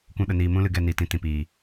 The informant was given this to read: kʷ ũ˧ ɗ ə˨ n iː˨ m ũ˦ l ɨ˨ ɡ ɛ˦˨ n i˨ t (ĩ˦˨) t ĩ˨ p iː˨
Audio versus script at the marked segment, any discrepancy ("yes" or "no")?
yes